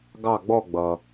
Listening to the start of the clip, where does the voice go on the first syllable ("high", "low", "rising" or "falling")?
falling